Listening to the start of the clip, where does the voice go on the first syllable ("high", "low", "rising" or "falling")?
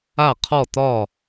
falling